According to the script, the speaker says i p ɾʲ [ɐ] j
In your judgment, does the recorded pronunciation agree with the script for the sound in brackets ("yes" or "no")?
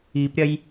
yes